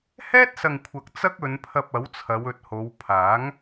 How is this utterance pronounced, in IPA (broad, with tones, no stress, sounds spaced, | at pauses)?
h ɛː˥ t̚ s ɐ˨ ŋ kʷʰ ɐ˨ k̚ t͡s ɐ˥ k̚ ɵ˨˧ n pʰ ɐ˧ p̚ ɐ˨˥ w t͡sʰ ɐ˨˧ w ɵ˨ t̚ h o˨˧ w pʰ aː˨˥ ŋ